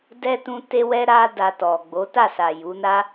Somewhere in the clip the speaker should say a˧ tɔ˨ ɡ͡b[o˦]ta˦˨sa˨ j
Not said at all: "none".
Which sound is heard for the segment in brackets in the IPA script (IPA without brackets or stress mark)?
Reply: o˨˦